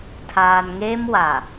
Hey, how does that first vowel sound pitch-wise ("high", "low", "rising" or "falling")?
low